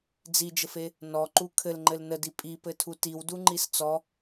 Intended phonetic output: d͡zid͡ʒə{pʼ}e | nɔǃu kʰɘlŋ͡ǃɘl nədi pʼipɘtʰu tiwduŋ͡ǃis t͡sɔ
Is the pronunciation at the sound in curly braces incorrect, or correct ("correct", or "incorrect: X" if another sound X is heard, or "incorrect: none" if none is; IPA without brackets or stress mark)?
incorrect: f